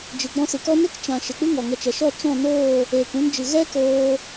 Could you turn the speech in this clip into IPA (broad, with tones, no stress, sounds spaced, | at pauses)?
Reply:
d͡ʒ ɨ˨ ɡ͡b ɔ̃˧ s ɨ˨ k ɔ˦ n e˦ k t͡ʃ ã˨ ʃ e˨ k͡p ɨ˦ ŋ ɔ˨ ŋ ə˧ t͡ʃ ɛ˨ ʃ ɔ˦˨ t͡ʃ ɔ̃˦˨ n oː˦˨ | eː˨ k ũ˧ n d͡ʒ ɨ˨ ɣ ɛ˦ k oː˧